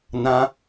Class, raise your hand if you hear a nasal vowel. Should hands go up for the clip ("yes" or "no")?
yes